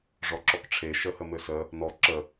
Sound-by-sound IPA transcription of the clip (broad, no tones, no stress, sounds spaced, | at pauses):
ʐ ɔ ǁ ɔ k ʈ͡ʂʰ e ʃ ə h ə m ɘ s ə | n̪ ɔ ǁ ə